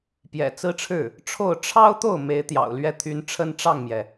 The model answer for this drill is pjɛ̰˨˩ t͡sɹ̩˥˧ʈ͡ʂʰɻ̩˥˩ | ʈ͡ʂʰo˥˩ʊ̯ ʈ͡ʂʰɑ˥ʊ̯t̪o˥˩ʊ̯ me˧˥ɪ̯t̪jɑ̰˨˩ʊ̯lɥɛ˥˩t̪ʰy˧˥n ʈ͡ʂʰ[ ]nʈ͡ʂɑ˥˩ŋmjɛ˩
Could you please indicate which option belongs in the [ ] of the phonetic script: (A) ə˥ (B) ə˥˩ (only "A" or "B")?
A